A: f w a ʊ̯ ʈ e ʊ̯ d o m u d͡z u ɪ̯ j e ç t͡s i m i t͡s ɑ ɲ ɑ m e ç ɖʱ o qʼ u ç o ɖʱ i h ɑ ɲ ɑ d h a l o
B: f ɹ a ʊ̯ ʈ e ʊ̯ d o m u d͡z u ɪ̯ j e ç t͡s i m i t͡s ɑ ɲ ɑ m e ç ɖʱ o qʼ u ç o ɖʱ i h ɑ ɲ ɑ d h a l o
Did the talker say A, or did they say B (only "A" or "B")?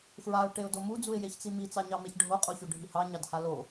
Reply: B